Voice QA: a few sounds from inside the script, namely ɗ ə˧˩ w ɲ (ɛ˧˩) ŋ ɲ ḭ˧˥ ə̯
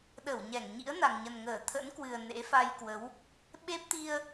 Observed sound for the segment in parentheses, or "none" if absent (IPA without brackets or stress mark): ɛ˧˩